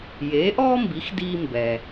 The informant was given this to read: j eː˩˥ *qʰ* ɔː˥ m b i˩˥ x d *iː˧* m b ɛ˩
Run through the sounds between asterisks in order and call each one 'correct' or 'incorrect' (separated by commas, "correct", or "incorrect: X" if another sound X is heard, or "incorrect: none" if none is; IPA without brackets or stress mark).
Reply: incorrect: ʔ, correct